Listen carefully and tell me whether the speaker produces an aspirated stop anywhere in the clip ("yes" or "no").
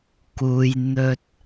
no